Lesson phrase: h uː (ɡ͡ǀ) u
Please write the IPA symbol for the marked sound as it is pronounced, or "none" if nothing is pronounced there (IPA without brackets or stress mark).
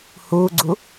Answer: ɡ͡ǀ